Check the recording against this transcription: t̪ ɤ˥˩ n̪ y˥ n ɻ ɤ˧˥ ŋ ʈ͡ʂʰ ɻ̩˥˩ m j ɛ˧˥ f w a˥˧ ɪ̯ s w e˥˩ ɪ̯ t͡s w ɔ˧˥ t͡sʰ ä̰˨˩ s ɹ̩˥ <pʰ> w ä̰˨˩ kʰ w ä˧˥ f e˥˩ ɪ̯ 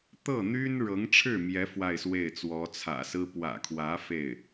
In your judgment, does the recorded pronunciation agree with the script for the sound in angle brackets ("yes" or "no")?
no